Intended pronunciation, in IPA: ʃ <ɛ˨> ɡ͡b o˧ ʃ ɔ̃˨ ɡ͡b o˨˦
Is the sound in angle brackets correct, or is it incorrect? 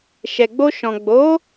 correct